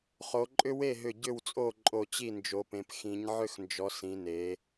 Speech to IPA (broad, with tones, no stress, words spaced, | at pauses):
χo˩˧ǃʼʏ˥ we˥˩ɦʏ˧˩ ɟʏ˧˩wt͡sʼo˧˩ ǃʼo˧˩t͡ɕi˥˩nd͡ʒo˩˧pẽ˩˧p xĩ˩˧ɲʕʏ˥˩xnd͡ʒɔ˩˧ sĩ˩˧ne˩˧